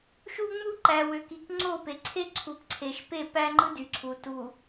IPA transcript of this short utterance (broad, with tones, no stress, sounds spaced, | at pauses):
ʃ u˦ ŋ͡m u˦ ǃ æ˨ w ø˨ k i˨ k ŋ͡ǀ o˦˨ p e˨ ǀʰ e˦ ǀʰ u˨ p ǀʰ e˨ ʃ p e˦˨ p æ˦ ŋ͡ǃ ɯ˦ d y˨ ǀʰ u˨ t u˨